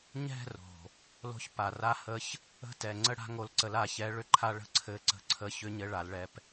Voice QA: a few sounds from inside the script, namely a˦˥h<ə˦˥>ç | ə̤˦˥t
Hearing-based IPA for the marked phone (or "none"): ə˦˥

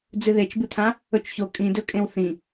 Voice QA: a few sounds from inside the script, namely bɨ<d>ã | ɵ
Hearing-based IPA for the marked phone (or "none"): t̪ʰ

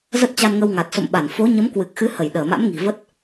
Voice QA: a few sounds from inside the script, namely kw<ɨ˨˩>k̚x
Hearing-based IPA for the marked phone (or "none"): ɨ˨˩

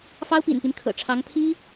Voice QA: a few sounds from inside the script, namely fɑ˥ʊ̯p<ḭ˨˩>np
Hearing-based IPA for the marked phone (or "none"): ḭ˨˩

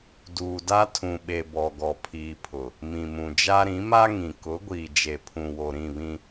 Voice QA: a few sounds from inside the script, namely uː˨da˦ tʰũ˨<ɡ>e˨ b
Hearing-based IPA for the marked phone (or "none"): ɓ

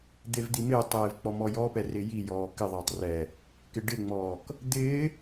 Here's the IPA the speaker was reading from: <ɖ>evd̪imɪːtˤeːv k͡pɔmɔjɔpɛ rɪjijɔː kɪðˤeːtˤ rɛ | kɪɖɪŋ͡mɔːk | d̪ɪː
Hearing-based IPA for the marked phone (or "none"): d̪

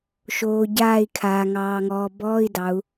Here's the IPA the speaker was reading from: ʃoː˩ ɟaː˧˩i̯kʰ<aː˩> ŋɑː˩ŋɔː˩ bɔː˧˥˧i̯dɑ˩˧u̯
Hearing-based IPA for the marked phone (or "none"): aː˩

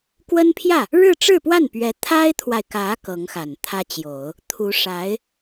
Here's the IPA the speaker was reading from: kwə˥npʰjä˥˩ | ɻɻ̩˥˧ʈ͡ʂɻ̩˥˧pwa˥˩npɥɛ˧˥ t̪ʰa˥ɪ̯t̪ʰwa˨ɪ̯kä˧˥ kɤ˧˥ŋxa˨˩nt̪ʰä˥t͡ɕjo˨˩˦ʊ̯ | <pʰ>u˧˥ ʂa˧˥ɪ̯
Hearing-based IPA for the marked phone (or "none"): t̪ʰ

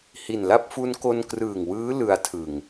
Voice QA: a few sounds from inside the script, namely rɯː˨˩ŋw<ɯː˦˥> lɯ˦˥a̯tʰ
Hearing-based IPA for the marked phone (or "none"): ɯː˦˥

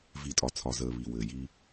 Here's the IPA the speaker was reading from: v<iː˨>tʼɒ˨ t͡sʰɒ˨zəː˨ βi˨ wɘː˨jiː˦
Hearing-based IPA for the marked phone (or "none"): i˨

